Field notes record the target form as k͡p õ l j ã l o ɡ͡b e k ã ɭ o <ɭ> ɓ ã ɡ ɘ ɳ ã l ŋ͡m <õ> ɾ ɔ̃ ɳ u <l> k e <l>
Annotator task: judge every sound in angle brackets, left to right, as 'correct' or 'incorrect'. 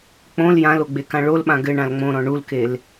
incorrect, correct, correct, correct

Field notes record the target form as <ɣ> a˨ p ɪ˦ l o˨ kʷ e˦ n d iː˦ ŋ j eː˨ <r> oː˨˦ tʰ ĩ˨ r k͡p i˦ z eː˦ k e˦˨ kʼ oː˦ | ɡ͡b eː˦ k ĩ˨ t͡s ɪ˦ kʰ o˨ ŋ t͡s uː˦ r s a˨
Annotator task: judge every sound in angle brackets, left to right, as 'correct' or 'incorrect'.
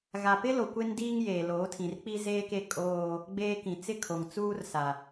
correct, incorrect

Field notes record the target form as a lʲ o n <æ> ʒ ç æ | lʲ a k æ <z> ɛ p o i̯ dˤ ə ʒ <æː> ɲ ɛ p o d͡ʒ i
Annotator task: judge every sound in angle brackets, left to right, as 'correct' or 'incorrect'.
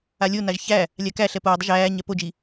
incorrect, incorrect, correct

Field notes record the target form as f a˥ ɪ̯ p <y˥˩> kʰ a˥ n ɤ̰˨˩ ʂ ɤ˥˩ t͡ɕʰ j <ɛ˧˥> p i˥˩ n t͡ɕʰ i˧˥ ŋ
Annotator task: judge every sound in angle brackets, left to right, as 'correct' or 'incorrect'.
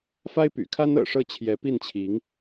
incorrect, correct

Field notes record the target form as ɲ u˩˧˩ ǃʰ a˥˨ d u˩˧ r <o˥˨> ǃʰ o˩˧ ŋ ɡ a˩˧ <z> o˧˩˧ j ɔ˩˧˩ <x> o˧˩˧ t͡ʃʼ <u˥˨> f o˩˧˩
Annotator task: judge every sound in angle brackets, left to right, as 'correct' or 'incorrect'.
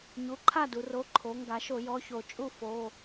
incorrect, incorrect, incorrect, correct

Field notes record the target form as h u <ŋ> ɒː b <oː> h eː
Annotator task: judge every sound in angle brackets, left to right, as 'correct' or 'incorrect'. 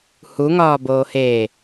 correct, correct

